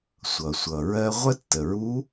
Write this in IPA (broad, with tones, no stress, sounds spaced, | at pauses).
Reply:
sʷ ʌ˩ sʷ ʌ˩ ɹ ɜ˧ ʁʷ ə˥ tː ə˩ ɹ u˧˥